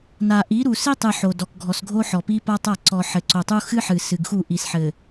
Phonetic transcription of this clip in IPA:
n a˨ ʔ i˨˦ ɾ u˨ s i˦ tˤ ɨ˨ ħ o˨ d ɔ˨ k ɡʱ ɔ˨ s ɡʱ o˦ ħ ɔ˨ p i˦ p a˦ tˤ a˦˨ ǀ ɔ˨ ħ ɘ˨ ǀ o˨ tˤ u˦ x ɨ˦ ħ ɨ˨ s ɨ˨ ɡ x u˦˨ ʔ i˨ s ħ ɘ˨

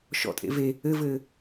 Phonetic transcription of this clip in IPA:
ʃ ɔ̰ tʼ ḛ v e | ɘ v ɘː

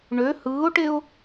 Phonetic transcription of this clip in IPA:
ɳ ø h ɯː ʊ̯ ʈ e ʊ̯

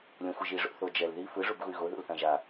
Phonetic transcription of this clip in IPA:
lʲ õ xʷ ɯ ʒ i ʐ o̰ θ o d͡ʒ ɛ l ð i f ɯ ʐ u b ɣ u y̯ ɣ o ð ṵ l θ ã ʒ a

